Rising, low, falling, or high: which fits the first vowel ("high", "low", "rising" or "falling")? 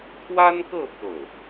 high